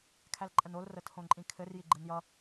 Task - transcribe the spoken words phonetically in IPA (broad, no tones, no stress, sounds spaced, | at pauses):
kʰ æ l ǃʼ ə n o l r ə tʰ õ ǃʼ ĩ kʰ ɘ r j i ɡ͡ǃ ɯ n j ʌ